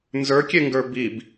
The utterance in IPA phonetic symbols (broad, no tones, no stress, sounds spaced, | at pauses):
n z ə˞ kʲ e ŋ ɡ ə˞ b i b